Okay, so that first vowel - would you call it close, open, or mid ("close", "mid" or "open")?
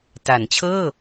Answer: open